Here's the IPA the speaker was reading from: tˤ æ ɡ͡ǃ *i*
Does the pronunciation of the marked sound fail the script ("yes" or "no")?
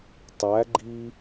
no